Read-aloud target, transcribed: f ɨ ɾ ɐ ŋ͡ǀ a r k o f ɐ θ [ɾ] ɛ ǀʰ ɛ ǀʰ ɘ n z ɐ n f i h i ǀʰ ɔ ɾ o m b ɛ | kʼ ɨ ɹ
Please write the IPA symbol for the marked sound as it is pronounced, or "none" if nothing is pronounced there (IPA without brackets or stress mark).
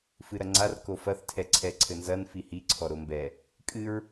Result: tʰ